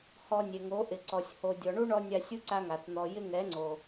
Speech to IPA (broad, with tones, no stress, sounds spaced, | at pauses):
h ɔ˧ nʲ e˨ ŋ o˨˦ ʔ ɪ˨ ǀ ɔ˨ sʲ h o˨ dʲ ɔ˨ ɳ u˦ ɳ ɔ˧ nʲ a˧ sʲ u˦ ǀ a˧ ŋ a˨ θ n̪ ɔ˧ j ɪ˦ ŋ ɛ˨˦ ŋ͡ǀ o˨